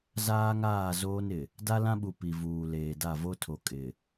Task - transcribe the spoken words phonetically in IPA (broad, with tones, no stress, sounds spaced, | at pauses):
z aː˦ ŋ aː˦˨ z oː˦ n ɪ˨ | d a˦ l ã˦ ɓ u˨ p i˨ v uː˨ l eː˨ d a˦˨ v o˦ tʰ o˨ kʼ ɪ˨